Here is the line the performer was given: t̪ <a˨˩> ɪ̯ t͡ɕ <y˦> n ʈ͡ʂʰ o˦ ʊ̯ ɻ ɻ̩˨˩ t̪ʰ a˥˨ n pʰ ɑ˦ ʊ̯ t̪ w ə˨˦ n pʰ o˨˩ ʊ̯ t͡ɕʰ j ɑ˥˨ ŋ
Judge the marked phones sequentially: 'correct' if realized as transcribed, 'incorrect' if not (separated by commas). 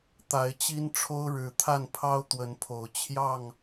incorrect, incorrect